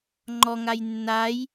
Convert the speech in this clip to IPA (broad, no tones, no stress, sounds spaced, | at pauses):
ŋ͡ǃ ɔ ŋ a j nː a j